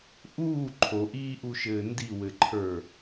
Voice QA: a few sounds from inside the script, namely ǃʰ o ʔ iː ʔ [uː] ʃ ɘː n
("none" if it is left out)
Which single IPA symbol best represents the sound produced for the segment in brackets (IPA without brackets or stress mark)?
u